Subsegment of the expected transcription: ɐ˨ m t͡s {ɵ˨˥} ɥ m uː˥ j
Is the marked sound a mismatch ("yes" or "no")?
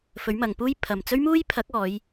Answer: yes